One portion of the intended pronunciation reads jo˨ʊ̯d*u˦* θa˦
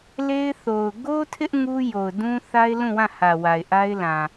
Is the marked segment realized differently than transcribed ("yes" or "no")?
yes